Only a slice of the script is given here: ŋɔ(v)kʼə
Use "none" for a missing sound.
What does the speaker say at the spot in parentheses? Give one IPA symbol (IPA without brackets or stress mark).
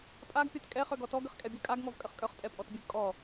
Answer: v